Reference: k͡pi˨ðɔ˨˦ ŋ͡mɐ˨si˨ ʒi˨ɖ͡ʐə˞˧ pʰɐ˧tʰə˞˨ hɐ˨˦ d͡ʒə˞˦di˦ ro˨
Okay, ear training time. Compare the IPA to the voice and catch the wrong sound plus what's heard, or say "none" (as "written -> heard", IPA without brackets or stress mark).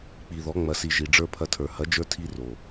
d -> tʰ